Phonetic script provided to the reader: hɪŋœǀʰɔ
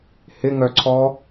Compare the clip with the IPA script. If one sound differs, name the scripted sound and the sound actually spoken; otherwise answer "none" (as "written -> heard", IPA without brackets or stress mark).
none